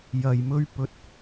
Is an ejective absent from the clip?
yes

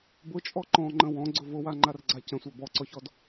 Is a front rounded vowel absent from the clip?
yes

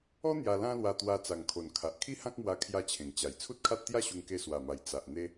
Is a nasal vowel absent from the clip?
no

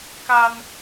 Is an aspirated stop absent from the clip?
yes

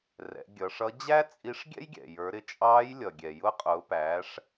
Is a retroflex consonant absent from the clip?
no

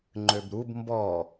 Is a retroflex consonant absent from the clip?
yes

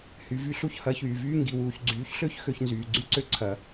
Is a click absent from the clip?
no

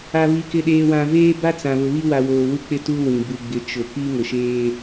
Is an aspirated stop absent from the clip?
yes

